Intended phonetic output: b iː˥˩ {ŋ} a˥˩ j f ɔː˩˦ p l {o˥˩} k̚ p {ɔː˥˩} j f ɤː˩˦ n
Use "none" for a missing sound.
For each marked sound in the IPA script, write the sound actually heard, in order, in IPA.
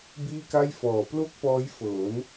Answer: k, o˥˩, ɔː˦˥

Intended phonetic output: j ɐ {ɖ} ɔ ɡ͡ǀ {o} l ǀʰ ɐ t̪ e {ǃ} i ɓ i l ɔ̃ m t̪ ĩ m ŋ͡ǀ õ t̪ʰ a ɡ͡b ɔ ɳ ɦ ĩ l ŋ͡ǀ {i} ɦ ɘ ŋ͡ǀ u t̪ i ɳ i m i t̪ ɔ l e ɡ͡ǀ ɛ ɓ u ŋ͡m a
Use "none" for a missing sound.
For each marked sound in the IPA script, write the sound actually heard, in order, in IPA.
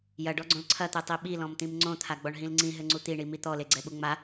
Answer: ɖ, õ, tˤ, ĩ

